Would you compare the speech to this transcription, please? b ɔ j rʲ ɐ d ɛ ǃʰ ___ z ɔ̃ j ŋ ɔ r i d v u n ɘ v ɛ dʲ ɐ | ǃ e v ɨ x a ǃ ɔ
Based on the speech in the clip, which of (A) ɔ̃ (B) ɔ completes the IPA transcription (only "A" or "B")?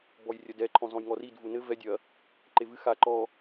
A